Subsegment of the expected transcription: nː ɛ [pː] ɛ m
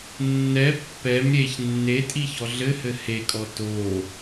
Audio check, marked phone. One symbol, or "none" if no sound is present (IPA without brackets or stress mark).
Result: pː